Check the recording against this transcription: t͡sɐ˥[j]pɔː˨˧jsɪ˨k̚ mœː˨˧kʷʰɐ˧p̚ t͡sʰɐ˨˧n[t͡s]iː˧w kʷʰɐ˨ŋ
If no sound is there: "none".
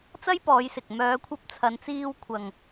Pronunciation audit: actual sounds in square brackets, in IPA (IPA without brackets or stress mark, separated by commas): j, t͡s